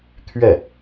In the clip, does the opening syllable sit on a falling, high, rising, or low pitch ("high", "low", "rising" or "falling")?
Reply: falling